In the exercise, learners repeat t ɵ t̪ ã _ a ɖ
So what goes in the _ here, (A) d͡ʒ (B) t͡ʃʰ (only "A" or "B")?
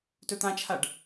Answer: B